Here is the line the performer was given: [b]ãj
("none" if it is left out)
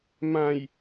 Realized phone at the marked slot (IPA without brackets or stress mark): m